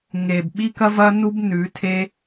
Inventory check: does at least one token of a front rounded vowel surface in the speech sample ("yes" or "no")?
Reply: no